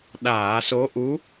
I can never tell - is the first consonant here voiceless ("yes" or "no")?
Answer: no